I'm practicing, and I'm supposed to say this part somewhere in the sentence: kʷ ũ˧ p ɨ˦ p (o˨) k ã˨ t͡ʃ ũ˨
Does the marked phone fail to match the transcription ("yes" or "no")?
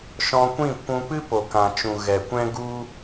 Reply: no